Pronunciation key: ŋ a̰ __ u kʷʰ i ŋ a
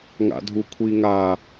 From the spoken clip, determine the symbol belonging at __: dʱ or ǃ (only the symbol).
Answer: dʱ